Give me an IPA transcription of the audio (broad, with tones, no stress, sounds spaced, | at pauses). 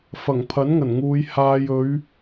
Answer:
f ɐ˨˩ ŋ pʰ ɐ˨˥ n ŋ ɐ˨˩ n ŋ uː˨˧ j h aː˧ j ɵ˨˧ ɥ